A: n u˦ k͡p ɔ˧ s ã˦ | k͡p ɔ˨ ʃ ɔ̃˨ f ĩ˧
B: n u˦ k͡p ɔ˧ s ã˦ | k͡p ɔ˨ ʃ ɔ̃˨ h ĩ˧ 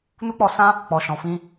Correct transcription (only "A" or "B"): A